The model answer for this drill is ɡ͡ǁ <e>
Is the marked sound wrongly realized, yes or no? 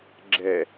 yes